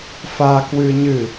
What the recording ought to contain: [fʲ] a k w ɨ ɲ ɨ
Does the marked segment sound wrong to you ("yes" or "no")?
yes